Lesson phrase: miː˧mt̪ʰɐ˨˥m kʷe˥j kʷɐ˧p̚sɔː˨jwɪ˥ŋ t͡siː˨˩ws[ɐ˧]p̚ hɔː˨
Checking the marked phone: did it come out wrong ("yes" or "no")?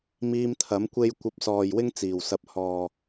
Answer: no